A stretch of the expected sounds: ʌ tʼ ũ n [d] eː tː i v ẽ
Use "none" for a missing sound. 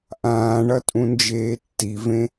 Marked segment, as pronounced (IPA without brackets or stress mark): d͡ʒ